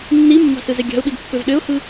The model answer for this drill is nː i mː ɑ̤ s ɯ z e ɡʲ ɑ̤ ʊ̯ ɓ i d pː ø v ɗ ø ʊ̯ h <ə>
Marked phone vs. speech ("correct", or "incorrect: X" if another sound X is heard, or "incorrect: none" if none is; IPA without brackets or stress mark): incorrect: ɯ